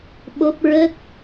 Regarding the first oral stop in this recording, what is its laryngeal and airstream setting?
implosive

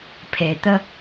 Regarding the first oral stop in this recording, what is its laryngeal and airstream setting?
aspirated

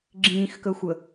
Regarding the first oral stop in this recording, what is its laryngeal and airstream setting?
click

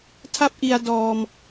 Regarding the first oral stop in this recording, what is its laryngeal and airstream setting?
aspirated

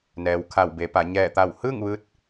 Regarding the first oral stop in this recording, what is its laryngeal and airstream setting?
aspirated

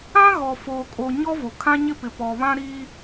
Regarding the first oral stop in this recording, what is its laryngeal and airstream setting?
ejective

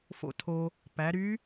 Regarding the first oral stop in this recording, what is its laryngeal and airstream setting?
aspirated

